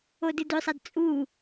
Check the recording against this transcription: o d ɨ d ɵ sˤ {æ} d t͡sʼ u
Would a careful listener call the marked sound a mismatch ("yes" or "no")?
yes